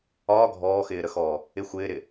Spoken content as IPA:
ɒː ɡʱ ɔː x ɪː ɾ ə x ɔː | ɪ xʷ ɪː ɾ ɪ

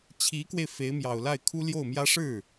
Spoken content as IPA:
t͡ɕʰ i˧˥ k w e˧ ɪ̯ f e˧˥ ɪ̯ m j ɑ˨˩ ʊ̯ l a˥˩ ɪ̯ kʰ u˥ l j o˥˩ ʊ̯ m j ä˥ ʂ ɻ̩˥˩

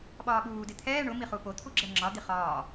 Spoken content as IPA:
ɓ ɒː ɓ uː d ɪ t̪ʰ ɛː ɳ ʊ m i χ u p o t̪ʰ u ɡ͡ǁ ɛ ŋ͡ǁ ɒ d̪ i χ ɒː

